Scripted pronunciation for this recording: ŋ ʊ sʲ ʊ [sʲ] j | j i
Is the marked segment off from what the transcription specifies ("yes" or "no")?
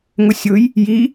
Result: yes